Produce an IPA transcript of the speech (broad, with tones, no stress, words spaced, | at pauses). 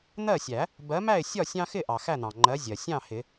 n̪ɜ˥˨sʲæ˨˩˦ | bɜ˨˥mæ˥˨ɪ̯ sʲɒ˥˨sʲɑ̃˦xɪ˥˨ʔɑ˩ xæ˥˨n̪ɑ̃˩ŋ͡ǃɜ˨˥ zʲɜ˩ sʲɑ̃˥˨hɪ˨˩˦